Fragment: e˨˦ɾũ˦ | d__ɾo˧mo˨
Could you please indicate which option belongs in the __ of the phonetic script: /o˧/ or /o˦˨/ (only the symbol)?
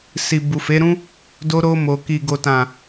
o˧